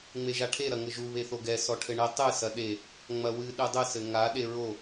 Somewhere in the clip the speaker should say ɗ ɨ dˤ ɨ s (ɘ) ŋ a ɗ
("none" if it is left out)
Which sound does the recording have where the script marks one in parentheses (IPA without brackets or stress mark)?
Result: ɘ